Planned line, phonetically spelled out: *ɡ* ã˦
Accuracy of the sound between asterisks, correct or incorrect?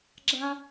incorrect